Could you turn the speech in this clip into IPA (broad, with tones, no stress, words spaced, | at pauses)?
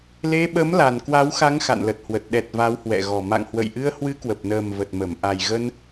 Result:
le˧ɓə˨˦m la˨˩nkwa˨˦wxa˨˦ŋ xa̰˧˨nlə˨˩t̚hwə˨˩t̚ ɗɛ˨˩t̚ va˨˦whwɛ̰˧˨ɣɔ˨˩ ma̰˧˨ŋhwə̰˧˨jʔɨ˧ə̯ hwɨ˨˦kwə˨˩p̚nəː˨˩m və˨˩t̚mə˧˩m ʔa˨˩jɣə˧n